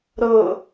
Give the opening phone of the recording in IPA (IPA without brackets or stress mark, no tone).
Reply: ɾ